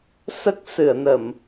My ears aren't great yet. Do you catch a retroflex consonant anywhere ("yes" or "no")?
no